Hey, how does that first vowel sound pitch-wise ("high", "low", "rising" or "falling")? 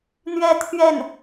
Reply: falling